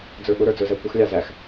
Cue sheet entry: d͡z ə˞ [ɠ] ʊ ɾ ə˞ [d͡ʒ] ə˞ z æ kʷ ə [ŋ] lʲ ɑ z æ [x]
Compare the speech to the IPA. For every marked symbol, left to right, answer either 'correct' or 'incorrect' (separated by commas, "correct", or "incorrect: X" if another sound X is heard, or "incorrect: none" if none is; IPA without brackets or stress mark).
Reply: correct, incorrect: d͡z, incorrect: x, correct